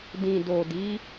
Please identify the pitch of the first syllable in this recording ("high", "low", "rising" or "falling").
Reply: low